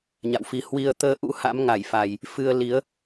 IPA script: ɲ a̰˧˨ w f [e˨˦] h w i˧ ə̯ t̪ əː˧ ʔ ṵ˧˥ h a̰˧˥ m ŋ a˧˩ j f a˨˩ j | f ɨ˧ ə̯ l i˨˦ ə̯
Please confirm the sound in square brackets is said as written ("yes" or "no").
no